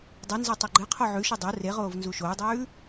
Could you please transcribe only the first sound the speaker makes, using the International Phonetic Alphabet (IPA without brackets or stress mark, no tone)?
dˤ